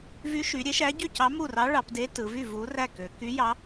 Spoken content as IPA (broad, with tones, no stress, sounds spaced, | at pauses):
v y˧˥ ʃ y˩˧ ɾʲ e˧˥ ʃ æ˧˥ ɟ y˥˨ c ɑ˧˥ m u˥˨ r ɑ˧˥ ɭ ɑ˩˧ p d e˧˥ t ɯ˩˧ v y˥˨ v u˧˥ r æ˥˨ k ø˩˧ k y˧˥ j ɑ˧˥